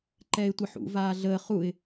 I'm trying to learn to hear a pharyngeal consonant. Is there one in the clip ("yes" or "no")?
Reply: yes